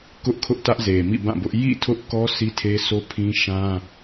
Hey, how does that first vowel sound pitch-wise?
high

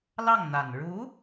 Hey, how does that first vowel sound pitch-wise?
falling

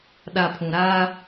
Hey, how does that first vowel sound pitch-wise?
low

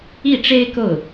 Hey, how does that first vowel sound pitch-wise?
falling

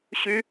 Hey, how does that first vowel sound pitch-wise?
high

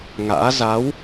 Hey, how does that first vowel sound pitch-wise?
rising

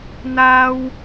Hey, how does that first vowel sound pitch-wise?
high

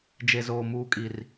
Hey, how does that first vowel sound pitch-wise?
low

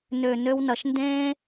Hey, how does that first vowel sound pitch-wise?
low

